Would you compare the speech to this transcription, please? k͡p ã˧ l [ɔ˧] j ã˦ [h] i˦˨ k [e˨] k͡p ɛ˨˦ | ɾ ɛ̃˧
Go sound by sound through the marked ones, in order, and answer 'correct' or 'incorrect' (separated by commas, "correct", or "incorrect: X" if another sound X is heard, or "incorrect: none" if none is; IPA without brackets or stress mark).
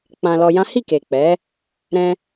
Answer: correct, correct, correct